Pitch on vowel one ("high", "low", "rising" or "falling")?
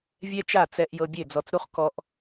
high